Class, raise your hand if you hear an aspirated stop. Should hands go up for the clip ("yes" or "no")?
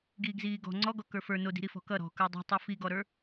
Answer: no